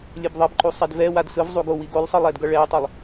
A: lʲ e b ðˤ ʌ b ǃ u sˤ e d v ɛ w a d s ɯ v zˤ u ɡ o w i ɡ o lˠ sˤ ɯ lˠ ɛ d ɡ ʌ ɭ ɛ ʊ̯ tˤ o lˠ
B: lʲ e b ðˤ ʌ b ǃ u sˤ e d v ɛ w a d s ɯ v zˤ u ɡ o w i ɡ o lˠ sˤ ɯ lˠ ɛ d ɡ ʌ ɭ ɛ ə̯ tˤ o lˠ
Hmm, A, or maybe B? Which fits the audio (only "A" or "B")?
A